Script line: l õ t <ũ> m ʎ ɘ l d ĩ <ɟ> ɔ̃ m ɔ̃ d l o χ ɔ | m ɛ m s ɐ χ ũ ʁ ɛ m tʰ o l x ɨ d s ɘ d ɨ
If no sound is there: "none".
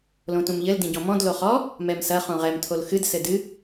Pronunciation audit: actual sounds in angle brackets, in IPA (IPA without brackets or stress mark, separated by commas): ũ, ɟ